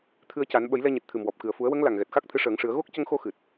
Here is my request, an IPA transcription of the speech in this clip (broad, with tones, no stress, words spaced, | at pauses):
t̪ʰɨ˧ə̯ca˨˩˦n ɓə˨˩˦jlɛ˧ɲɨ˨˩t̚ t̪ʰɨ˨˩mwɔ˨˩p̚ kɨ˨˩ə̯fu˨˩˦ə̯wə˧˥ŋ la˨˩ŋ ɣɛ˨˩t̚xa˦˥k̚ t̪ʰɨ˧˥ʂəː˨˩˦ŋʂɨ˨˩˦ə̯ ɣo˦˥k̚cə˧ŋxo˧xɨ˨˩t̚